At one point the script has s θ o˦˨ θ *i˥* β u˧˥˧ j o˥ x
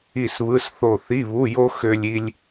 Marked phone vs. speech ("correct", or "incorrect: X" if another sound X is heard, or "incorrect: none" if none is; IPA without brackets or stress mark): incorrect: i˧˥˧